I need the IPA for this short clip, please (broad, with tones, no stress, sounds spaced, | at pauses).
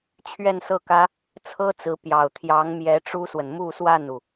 t͡ɕʰ ɥ ɛ˥˧ n s ɤ˥˩ k ä˥ | t͡sʰ ɤ˥ t͡s ɹ̩˧˥ p j ɑ˨˩ ʊ̯ t̪ʰ j ɑ˧˥ ŋ m j ɛ˧˥ ʈ͡ʂ u˥ s w ə˨ n m u˥˧ s w a˥˩ n u˩